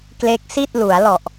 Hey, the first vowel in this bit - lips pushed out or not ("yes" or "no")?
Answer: no